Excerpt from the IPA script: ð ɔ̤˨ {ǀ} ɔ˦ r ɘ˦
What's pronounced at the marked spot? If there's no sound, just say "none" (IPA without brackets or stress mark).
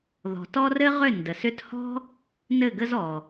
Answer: t